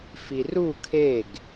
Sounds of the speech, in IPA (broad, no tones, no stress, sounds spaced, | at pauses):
f i r u kʰ e ɡ